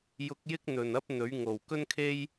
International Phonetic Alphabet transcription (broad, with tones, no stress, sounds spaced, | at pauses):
j ʊ˧ k̚ j ɪ˥ k̚ n̪ ɵ˨˩ n ɐ˥ p̚ n̪ ɵ˨˥ ɥ ŋ o˨˩ w k ɵ˥ n kʰ e˥ j